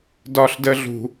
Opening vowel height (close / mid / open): open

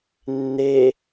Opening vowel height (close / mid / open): mid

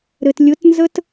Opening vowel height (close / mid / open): mid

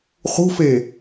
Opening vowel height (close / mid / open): close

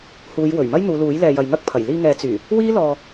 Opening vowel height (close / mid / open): close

